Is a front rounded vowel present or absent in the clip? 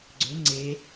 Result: present